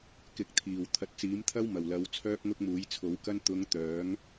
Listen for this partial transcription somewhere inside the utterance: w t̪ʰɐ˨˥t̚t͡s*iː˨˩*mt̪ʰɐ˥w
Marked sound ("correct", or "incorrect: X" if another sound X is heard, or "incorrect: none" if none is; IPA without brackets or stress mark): incorrect: iː˨˥